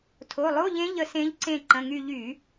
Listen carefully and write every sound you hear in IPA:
tʰ o˩˧˩ lˠ o˧˥˧ ʎ ẽ˧˥ ʎ ə˦˨ s ẽ˧˥ ʎ ǀ ẽ˦˨ ǃ ə̃˩˧˩ ŋ y˦˨ ʎ y˧˩˧

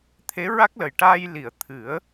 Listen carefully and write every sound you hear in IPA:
t̪ʰ e˧˥ ɹ a˦˥ k̚ l ə˨˩ j ʈ aː˧ j l i˨˩˨ ə̯ t̪ʰ ɨ˨˩˦ ə̯

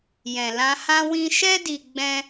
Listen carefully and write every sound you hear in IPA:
j ɛ̃˨ l ã˧ h ã˦ w ĩ˦ ʃ ɛ˦ d i˧ ɡ͡b ɛ̃˦

